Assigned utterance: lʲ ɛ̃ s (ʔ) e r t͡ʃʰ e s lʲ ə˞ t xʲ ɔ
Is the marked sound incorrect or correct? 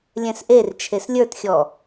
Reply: correct